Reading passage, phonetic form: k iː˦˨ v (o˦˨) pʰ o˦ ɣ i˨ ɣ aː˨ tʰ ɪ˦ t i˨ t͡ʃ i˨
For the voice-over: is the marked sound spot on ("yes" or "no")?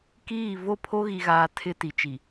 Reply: yes